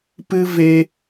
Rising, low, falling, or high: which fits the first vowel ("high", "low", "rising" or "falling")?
high